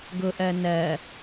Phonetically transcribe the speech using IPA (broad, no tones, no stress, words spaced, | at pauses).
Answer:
ɡʊʔɜ nɜ